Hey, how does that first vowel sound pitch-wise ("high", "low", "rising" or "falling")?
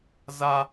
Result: high